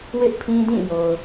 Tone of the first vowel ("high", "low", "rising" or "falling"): high